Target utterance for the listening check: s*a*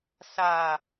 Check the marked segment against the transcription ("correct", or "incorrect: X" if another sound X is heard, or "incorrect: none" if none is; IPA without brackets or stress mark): correct